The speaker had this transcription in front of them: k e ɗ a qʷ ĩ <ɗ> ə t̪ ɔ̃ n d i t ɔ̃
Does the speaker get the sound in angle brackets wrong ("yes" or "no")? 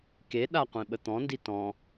yes